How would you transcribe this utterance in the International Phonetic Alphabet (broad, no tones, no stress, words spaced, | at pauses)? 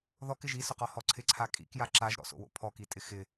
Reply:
ðɔkɪʒ isʊqɔhɔ ǀʰɪǀʰa kʼḭkja ǁaʒɾɔ̰so̰wo̰ pʰɔkitʼɪ xɪ